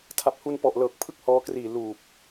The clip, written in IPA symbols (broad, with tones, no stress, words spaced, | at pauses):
tʰa˨˩p̚hu˧npɔ˨˩ʔ lɤː˨˩k̚pʰɯ˥˩k̚hɔː˧kriː˨˩ luː˨˩p̚